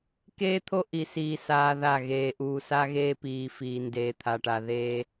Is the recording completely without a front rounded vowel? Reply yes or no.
yes